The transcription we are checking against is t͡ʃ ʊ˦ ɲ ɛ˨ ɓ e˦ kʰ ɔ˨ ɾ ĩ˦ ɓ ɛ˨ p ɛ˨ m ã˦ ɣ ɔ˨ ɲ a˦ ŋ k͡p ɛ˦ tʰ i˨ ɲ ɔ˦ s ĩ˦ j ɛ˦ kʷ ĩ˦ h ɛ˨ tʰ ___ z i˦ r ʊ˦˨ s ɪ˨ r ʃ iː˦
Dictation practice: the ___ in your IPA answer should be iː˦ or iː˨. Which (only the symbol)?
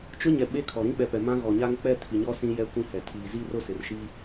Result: iː˨